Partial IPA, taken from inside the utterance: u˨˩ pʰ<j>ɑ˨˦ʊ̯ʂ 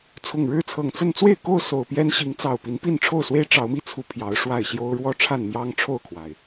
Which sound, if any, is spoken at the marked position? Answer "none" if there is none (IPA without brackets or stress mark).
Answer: j